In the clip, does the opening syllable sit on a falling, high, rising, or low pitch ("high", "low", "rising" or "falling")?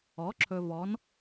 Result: rising